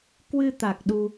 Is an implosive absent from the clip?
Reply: no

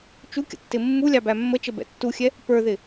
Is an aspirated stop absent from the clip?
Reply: yes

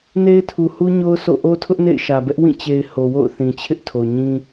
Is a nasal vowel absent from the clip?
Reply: no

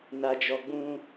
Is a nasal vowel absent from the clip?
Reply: no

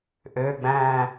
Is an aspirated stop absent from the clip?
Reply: yes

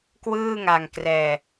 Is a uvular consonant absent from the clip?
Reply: yes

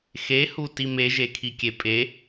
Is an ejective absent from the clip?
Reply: no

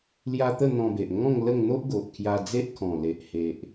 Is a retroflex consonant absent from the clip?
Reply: yes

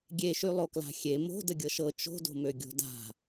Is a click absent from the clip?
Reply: yes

